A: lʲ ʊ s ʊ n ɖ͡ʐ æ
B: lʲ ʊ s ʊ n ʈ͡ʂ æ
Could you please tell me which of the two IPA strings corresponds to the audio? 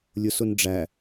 A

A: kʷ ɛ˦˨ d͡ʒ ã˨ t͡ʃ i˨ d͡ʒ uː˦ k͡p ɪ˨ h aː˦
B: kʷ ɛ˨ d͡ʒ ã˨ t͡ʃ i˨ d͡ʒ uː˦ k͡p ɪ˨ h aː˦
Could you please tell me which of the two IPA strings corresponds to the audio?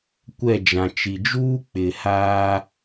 A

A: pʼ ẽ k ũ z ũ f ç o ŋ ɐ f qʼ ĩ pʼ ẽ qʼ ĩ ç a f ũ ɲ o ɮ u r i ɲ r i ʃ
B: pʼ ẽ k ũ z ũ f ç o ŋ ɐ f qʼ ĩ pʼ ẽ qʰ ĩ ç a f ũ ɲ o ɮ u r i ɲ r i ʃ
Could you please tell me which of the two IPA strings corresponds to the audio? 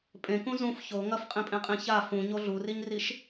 A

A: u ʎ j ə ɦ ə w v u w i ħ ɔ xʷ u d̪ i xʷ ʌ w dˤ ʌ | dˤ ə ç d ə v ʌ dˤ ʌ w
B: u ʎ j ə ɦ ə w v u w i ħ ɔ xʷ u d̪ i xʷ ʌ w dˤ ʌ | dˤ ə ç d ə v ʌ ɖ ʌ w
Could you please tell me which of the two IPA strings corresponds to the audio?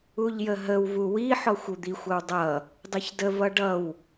B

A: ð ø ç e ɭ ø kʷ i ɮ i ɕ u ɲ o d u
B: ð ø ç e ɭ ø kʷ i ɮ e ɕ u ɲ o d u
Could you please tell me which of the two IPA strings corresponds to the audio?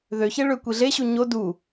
B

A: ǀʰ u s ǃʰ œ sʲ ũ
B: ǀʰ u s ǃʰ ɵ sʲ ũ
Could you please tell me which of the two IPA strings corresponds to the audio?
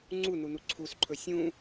B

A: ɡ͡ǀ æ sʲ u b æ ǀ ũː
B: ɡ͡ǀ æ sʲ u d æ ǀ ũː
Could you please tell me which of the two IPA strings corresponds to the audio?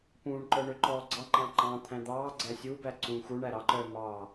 A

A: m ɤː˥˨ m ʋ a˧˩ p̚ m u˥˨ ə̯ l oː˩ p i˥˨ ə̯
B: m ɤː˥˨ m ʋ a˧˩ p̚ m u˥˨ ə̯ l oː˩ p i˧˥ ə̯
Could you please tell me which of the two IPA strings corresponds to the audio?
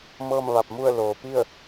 A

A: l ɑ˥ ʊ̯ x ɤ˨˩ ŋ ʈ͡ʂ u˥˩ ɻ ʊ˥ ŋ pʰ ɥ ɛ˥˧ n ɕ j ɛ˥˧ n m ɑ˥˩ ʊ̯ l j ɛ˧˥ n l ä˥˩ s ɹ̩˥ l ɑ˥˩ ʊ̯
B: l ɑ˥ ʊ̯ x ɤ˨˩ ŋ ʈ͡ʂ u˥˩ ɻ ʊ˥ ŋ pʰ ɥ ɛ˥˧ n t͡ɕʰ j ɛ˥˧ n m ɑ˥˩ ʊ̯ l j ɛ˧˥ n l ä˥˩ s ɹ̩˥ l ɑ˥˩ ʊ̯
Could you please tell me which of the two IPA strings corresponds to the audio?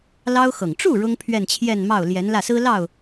B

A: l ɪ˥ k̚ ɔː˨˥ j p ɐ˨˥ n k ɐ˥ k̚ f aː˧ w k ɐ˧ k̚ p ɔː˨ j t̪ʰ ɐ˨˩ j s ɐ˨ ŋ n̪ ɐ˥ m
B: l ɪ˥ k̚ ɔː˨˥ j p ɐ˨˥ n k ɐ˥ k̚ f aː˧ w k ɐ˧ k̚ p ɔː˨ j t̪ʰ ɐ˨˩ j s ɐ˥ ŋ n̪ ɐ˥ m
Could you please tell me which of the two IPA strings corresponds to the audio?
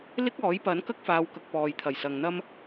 A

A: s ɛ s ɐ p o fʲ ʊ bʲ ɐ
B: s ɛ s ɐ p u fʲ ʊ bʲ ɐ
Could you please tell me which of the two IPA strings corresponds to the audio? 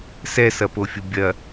A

